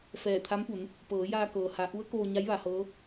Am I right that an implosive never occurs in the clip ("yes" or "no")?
yes